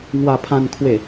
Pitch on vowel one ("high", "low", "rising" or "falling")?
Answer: low